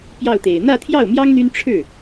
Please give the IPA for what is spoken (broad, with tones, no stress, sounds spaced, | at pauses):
p j ɑ˥˩ ʊ̯ t̪ e˨˩ ɪ̯ n̪ ä˥˧ t̪ʰ j ɑ˥˩ ʊ̯ m j ɑ˥ ŋ n̪ y˥ n ʈ͡ʂʰ ɻ̩˥˩